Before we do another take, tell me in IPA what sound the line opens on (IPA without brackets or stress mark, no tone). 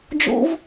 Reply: d͡ʒ